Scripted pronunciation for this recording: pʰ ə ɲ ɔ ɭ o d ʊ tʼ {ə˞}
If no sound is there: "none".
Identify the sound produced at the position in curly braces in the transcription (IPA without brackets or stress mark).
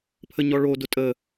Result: ə